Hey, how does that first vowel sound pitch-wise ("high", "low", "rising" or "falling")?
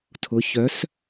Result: rising